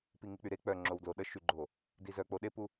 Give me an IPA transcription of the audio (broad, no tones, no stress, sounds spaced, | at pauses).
p i ŋ i k͡p y ɾ e k͡p œ ŋ͡ǁ o w d l o ɗ ə ʃ y ɡ͡ǃ o | d i z œ k͡p o ɗ e p u